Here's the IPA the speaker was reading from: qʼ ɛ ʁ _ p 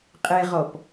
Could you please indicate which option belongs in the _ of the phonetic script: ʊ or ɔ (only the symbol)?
ɔ